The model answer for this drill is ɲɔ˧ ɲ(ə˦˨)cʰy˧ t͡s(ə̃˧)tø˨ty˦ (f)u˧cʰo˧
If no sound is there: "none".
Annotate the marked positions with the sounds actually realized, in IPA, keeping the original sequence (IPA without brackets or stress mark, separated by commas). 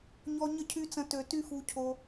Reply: ə˦˨, ə̃˧, f